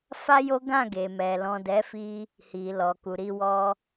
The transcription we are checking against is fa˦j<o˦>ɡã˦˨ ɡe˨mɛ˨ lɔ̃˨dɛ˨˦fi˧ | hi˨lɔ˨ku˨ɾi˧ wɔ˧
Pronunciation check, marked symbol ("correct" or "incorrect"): correct